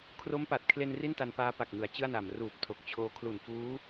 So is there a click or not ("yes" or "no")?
no